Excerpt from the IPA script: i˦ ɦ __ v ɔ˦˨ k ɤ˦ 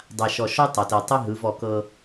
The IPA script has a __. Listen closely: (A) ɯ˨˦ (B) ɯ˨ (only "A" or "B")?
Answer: A